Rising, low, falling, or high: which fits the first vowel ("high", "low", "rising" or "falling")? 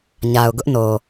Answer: low